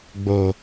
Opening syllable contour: low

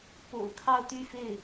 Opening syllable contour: low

